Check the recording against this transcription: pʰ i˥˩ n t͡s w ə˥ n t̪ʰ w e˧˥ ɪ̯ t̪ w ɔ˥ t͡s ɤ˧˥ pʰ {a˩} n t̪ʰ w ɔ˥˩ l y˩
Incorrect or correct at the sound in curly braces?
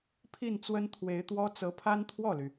incorrect: a˥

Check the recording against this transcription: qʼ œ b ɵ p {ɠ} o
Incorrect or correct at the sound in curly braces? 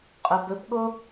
correct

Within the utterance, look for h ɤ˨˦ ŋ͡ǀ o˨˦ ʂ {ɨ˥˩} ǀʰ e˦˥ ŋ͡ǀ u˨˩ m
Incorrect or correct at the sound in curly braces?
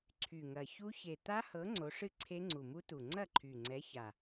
correct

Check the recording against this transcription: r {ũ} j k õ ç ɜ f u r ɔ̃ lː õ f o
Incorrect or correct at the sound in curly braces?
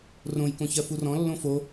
incorrect: õ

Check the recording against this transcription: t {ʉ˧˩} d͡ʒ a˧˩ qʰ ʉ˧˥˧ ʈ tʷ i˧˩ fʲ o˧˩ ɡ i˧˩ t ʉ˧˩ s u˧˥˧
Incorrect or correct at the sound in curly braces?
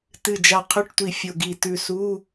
incorrect: ɨ˧˩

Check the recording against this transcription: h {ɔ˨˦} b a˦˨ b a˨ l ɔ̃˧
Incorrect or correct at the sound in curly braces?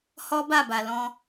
incorrect: ɔ˦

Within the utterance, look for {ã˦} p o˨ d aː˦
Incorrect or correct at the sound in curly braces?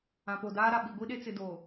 incorrect: ã˨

